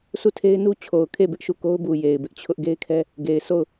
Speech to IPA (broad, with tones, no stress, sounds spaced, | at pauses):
sʰ u˦˨ tʰ e˦ ɪ̯ n u˦ t͡ɕʰ o˨ ʊ̯ kʰ e˦˨ b ɪ˦ ʔ ʃ u˦˨ k o˦ ʊ̯ b u˨ j e˨ ɪ̯ b ɪ˦ ʔ t͡ɕʰ ʊ˦ ʔ ɡ e˦ ɪ̯ kʰ ɛ˦ | ɡ e˨ ɪ̯ sʰ o˦˨ ʊ̯